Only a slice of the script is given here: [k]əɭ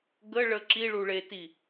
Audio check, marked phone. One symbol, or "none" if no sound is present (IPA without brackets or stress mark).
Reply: ɡ